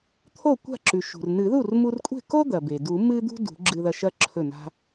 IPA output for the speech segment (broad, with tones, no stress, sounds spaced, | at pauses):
t̪ʰ o˥˩ kʷ a̤˥˩ ǁ ʉ˩ ʃ ṳ˩ r n ɨ˨˩˦ ð u˥˩ r m u˧ r kʷʼ e̤˥˩ k o˥ d̪ ɐ˩ b e˩ d u˨˩˦ m ɨ˥ d̪ ṳ˥ d ṳ˨˩˦ ɡ͡ǁ ɨ˧ ð ɐ˧ ʃ ɐ˥ ǁʰ ɵ˥˩ n a̤˥